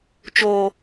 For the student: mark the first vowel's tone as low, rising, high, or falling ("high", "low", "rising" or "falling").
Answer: low